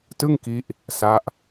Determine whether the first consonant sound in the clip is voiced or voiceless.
voiceless